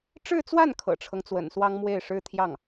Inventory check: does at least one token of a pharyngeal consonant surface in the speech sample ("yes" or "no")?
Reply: no